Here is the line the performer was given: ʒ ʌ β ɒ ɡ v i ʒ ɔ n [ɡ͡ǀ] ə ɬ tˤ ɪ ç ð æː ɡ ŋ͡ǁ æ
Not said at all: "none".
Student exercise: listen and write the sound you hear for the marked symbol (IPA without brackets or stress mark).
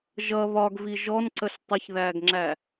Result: ǀ